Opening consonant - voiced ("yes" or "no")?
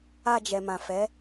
yes